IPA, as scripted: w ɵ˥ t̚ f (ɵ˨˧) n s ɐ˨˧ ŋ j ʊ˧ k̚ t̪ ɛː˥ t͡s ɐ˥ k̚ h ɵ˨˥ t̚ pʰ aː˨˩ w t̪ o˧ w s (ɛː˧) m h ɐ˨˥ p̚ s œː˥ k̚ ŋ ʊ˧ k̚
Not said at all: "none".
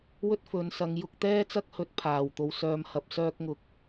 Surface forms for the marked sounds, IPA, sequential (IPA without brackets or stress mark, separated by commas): ɵ˨˧, œː˧